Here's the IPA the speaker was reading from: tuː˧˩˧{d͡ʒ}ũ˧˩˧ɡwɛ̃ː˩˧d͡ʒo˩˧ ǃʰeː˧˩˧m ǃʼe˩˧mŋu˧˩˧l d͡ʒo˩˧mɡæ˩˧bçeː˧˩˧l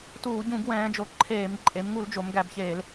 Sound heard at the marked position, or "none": ɟ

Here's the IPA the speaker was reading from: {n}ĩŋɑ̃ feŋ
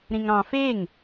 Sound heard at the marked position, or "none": ɾ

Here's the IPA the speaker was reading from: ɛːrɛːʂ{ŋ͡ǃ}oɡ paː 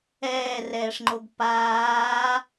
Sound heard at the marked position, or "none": ŋ͡ǃ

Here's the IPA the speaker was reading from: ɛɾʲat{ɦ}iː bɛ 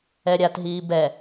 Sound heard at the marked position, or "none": ɦ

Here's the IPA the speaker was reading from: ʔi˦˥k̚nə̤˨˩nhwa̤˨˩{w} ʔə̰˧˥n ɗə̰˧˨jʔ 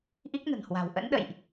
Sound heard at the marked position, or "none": w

